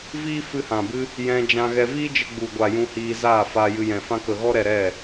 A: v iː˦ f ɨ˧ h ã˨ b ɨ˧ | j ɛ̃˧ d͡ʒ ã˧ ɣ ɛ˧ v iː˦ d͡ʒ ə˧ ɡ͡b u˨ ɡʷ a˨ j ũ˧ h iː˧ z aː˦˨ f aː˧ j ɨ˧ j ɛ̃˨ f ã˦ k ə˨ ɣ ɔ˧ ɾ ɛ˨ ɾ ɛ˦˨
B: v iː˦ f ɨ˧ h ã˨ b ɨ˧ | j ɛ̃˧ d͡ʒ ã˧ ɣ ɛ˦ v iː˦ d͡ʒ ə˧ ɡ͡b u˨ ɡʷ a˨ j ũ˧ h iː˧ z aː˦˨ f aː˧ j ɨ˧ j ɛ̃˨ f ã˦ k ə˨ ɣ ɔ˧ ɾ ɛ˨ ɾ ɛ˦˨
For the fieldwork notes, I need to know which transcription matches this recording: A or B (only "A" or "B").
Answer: A